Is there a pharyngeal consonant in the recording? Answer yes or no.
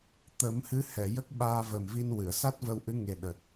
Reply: no